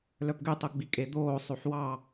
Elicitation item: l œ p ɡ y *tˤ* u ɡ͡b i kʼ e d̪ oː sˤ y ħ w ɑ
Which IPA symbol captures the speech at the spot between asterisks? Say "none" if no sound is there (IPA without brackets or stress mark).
tˤ